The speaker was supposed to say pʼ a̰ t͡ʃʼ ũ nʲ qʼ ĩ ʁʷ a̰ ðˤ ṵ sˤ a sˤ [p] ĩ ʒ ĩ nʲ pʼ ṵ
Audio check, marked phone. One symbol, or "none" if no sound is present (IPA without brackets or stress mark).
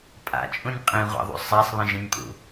β